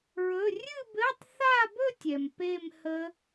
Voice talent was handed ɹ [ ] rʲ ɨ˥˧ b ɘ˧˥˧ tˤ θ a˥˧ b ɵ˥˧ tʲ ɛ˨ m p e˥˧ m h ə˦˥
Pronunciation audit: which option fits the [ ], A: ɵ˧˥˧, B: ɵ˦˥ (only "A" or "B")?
A